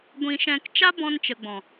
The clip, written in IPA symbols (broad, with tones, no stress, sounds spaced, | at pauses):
ɡʷ ĩ˧ ʃ ɛ̃˧ k t͡ʃ a˦ b ɔ̃˧ n t͡ʃ ə˨ ɡ͡b ɔ̃˨